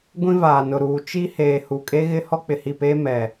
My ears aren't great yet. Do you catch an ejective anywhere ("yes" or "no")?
yes